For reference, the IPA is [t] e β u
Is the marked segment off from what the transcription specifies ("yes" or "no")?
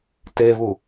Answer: no